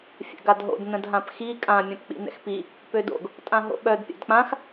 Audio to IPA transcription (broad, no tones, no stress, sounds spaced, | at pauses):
fʲ ɛ̰ ɡ a d ɦ o̰ d n ə̃ d ɦ ã p x i kʼ ã mʲ œ̃ p k͡p ḭ n ɛ̰ x p i | p ø d o̰ ɡ | tʼ ã ɦ o̰ ɓ œ d pʲ a̰ d k͡p ã x